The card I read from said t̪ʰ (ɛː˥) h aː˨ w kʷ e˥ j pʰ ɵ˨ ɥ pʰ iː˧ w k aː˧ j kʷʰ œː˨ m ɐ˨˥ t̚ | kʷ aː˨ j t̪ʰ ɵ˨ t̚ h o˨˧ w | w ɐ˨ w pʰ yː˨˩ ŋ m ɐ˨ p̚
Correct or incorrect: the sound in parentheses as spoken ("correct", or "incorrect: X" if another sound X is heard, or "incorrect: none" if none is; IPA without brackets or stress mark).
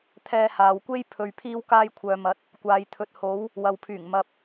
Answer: incorrect: ɛː˧